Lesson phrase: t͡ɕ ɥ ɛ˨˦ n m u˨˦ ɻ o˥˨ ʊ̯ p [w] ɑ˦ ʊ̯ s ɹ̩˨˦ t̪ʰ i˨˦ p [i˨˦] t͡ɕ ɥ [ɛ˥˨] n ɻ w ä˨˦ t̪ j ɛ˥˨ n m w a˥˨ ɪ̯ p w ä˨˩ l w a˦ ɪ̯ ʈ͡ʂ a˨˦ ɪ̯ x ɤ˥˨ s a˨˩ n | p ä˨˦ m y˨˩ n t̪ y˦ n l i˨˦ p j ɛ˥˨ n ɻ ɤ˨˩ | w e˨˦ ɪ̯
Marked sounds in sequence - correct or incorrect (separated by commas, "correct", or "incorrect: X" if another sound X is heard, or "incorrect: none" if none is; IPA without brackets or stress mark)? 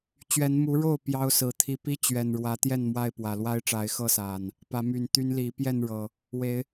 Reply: incorrect: j, incorrect: i˦, incorrect: ɛ˨˩